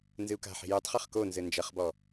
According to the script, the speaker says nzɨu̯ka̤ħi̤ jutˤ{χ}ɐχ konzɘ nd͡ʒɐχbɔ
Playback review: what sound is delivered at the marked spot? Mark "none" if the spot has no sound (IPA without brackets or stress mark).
χ